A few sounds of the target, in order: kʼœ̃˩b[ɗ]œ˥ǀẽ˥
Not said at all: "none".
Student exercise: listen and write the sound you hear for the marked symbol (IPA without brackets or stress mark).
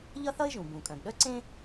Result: ɗ